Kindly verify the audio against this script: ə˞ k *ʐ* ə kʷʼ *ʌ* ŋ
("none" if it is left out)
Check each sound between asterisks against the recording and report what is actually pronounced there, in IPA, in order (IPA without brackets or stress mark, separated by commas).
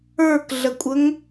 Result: ɮ, ə